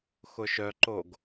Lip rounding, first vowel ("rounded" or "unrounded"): rounded